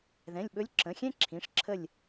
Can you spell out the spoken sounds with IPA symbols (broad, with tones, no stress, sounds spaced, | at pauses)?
ð ɛ̃˩˧˩ lʲ ɓ ɵ˧˥ lʲ ǁ ə̃˩˧˩ xʲ ɛ̃˥ ǁʰ ĩ˩˧˩ ʂ ǁʰ ə˦˨ lʲ